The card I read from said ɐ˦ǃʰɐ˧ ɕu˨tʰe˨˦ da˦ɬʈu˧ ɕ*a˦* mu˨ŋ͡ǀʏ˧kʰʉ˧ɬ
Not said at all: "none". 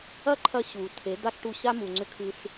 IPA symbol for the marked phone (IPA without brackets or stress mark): a˦